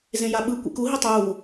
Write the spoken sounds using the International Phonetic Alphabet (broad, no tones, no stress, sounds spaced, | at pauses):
z ẽ j a ɓ ɯ kʷ ḭ k u ɦ i tˤ uː